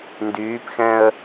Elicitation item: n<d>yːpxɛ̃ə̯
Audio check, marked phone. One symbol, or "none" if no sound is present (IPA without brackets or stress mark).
d